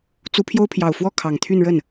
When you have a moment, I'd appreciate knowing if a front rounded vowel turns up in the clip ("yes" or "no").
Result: yes